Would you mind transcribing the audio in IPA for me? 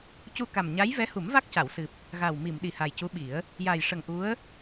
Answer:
c u˧ k a˨˩ m ɲ a˧˥ j v ɛ˧˥ h u˨˩˦ m v a˦˥ k̚ c a˨˩˨ w s ɨ˨˩ p̚ | ɣ a˨˩ w m i˨˩˨ m ɗ i˨˩ h a˨˩ j c u˧˥ ɓ i˨˩˦ ə̯ | j a˨˩ j ʂ ə˨˩ ŋ ʔ u˧˥ ə̯

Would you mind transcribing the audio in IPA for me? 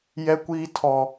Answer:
j ɛ˦ kʷ iː˦ tʰ ɔ˦

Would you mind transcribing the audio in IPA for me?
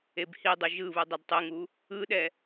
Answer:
e b h i dˤ u ʒ ɯ β u dˤ ɛ d tˤ ɨ ŋ u | ɯ ɗ ɛ

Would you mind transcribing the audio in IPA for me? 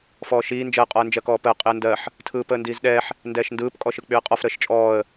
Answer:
f ɔː ʃ iː n d͡ʒ ɜ qʼ ɔ ə̯ n d͡ʒ ɜ k ɔː p əː qʼ ɪ ə̯ n d ɜ ħ | tʰ ɯː p əː n d iː z ɗ ɛː ħ | n d ɛː ʃ n d ɯː p kʼ ɔ ʃ ɯ k͡p y ə̯ qʼ ɔ f ɾ əː ʃ t͡ʃʼ ɔː ə̯

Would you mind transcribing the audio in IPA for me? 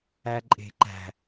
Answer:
æ ǃʼ e̤ ǃ æ̤

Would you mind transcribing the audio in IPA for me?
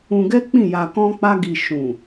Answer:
ũ˧ ɡ ɛ˦ k͡p ĩ˦˨ j a˧ k ɔ̃˦ k͡p a˦ ɡ i˧ ʃ ũ˨

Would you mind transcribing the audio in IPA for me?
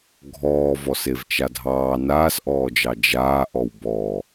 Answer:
ɡʱ ɔː v ɔ s e v t͡ʃ a dʱ ɑː n aː s ʔ ɔː d͡ʒ ɑ d͡ʒ aː ʔ ɔ w b ɔ

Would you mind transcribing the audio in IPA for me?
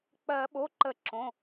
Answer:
k͡p ɜ˨˩˦ ɓ o˩˧˩ ǃ ə˨˩˦ ǁ õ˩˧˩

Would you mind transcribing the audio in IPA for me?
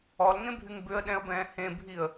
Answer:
ɔ l ŋ ẽ bʱ y ŋ b ʏ ə̯ ɗ ɛ̃ ə̯ b ɛ̃ː h ẽ bʱ i ə̯

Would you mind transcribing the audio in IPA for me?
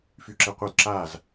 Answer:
f y ǁ ɛ qʷ œ d ǁ a z

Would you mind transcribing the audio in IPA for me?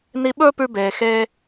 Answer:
n i˧ ɓ ɵː˥ p ʉ˧ b eː˩ x eː˧

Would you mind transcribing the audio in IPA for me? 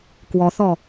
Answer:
k w ɔ θ ɔ

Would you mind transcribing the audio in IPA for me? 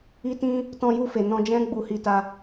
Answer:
i˦ t ĩ˦ | t ɔ̃˧ j u˧ f e˨ n ɔ̃˧ d͡ʒ ɛ̃˦ ɡ͡b u˧ h i˧ t a˧

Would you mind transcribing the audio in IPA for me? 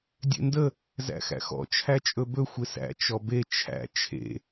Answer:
dʲ ḛ n d ə | z æ̰ x æ̰ x ɔ̰ t͡ʃʰ æ t͡ʃʼ ɵ b ɵ xʷ ɪ s æ̰ t͡ʃ ɔ b e t͡ʃʰ æ̰ t͡ʃʰ ḛ

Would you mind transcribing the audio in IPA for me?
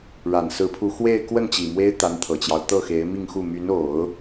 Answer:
ɻ a˨˩ n s ɹ̩˧˥ pʰ u˧˥ x w e˥˧ ɪ̯ k w ə˥˩ n t͡ɕ i˨˩ m w e˥ ɪ̯ t̪ a˧˥ n t̪ʰ ɤ˨˩ t͡ɕ j ɑ˦ ʊ̯ t̪ ɤ˥˩ x e˧˥ ɪ̯ m i˥˧ ŋ x u˥˩ m y˧˥ n o˨˩˦ ʊ̯

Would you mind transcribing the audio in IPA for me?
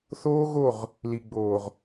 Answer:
θ oː˦ ɣ o˦˨ ʁ | l i˨ ɡ͡b oː˨ ʁ

